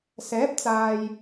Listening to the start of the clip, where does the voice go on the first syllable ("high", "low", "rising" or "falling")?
rising